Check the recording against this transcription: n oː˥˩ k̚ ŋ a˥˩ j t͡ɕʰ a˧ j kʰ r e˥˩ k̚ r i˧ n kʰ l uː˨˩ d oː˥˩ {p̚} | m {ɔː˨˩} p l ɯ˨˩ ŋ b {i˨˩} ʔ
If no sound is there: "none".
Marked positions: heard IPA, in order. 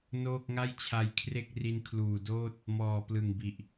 t̚, ɔː˨˩, i˨˩

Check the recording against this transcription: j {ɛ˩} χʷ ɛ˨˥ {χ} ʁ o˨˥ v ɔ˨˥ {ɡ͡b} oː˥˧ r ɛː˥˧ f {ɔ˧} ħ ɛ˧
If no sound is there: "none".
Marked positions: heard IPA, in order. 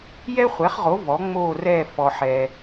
ɛ˥, χ, ŋ͡m, ɔ˧

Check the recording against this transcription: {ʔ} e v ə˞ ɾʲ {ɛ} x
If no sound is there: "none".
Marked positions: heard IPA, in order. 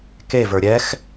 k, ɛ

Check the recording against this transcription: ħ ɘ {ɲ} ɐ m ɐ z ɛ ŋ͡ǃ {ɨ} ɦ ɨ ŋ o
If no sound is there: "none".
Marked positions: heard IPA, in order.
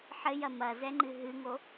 j, ɨ

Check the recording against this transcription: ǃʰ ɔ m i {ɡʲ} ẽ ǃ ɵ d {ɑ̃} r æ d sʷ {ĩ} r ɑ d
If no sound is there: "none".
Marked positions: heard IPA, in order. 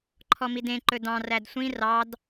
d, ɑ̃, ĩ

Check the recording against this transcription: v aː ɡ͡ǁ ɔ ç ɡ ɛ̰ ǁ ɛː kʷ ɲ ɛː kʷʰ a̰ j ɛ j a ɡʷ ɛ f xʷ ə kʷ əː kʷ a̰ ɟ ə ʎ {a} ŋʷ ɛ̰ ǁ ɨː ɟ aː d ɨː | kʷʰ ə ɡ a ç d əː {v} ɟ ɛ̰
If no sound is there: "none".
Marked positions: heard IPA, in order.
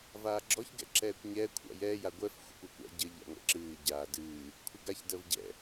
a̰, v

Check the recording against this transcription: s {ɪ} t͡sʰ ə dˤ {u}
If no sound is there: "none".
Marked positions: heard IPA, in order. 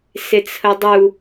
ɪ, u

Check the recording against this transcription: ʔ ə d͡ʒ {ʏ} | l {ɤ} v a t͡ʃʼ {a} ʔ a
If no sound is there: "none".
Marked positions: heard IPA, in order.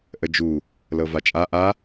u, ɤ, a

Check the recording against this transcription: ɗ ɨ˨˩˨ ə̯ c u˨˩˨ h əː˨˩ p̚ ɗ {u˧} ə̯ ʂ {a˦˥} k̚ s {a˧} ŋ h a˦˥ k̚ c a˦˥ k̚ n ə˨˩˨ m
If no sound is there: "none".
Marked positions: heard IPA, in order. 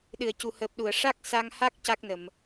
u˨˩˨, a˦˥, a˧

